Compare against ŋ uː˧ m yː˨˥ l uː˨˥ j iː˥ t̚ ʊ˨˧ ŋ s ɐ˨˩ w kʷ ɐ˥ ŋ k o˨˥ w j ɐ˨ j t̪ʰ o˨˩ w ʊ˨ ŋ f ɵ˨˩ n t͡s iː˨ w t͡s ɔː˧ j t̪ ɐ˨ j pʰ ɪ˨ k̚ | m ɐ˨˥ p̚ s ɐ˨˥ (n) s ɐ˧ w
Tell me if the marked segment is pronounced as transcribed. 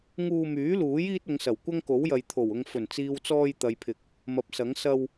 no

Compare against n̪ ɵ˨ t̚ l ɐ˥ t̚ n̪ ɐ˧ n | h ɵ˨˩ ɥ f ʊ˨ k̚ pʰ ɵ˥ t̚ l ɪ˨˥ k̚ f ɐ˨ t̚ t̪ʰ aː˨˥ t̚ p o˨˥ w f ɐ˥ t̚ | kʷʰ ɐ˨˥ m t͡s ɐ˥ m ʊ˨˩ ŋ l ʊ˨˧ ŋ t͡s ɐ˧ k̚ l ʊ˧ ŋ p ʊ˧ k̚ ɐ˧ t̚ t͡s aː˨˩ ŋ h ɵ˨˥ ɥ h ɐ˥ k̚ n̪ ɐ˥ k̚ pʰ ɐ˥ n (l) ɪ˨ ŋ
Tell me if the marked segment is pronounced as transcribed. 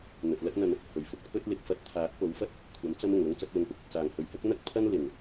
yes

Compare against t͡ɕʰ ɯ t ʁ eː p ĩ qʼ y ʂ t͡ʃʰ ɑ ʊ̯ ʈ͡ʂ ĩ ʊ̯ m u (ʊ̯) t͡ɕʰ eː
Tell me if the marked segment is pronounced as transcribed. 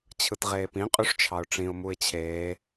no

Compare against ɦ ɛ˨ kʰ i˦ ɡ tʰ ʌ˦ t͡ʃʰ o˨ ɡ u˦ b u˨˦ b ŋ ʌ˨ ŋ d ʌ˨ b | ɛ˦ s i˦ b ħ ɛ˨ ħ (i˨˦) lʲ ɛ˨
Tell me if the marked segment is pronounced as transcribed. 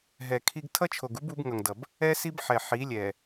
yes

